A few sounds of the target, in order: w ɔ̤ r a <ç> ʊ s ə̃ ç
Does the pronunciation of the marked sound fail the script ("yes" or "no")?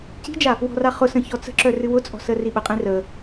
yes